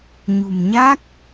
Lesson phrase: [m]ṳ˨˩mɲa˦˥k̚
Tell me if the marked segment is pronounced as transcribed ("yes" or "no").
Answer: no